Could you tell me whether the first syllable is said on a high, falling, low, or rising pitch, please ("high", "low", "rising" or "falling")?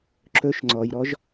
low